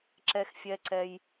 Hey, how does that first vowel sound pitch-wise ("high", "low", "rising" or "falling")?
high